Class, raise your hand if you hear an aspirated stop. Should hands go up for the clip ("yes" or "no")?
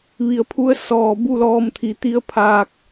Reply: yes